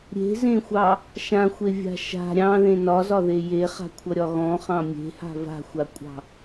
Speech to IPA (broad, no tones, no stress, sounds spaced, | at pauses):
ɾʲ e̤ z ẽ xʷ ɑ | ʃ ã xʷ e vʲ a̤ ʃ a̤ ɾʲ ɑ̃ ð ẽ n ɒ z ɒ ð e j e χ a̤ kʷʰ ʌ ɾʲ ɒ ɣ ɔ̃ χ ɑ̃ mʲ e̤ h a̤ v a̤ xʷ a kʷʼ ɑ̤